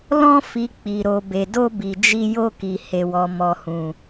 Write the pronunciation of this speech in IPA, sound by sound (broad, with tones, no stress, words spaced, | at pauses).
lɔ̃˧fi˨ k͡pi˨ ɾo˨be˨do˧ bi˨d͡ʒi˧ jo˧ki˨ he˨wɔ˨ mɔ˨hũ˨